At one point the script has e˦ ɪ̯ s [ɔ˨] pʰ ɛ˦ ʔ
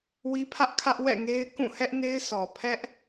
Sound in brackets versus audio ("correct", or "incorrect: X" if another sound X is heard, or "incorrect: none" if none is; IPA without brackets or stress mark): correct